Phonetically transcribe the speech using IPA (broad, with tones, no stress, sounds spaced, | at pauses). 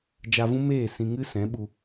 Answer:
d͡ʒ a˧ v ũ˦ m eː˦˨ s ĩ˧ ŋ ɨ˦ s ɛ̃˨˦ ɓ u˧